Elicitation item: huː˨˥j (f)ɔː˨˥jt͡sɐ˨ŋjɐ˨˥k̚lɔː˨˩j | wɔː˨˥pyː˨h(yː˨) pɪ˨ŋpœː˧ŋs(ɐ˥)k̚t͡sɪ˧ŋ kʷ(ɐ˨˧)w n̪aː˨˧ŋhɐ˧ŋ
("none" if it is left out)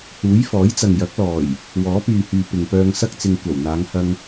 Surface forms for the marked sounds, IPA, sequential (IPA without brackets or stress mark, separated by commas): f, yː˨, ɐ˥, ɐ˨˩